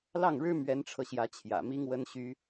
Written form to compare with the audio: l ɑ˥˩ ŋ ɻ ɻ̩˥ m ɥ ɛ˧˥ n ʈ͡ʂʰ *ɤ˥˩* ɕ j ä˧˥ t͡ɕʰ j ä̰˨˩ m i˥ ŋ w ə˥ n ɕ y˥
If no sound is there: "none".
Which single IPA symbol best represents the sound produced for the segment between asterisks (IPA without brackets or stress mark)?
ɤ˧